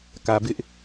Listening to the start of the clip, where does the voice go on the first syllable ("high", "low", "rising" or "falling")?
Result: low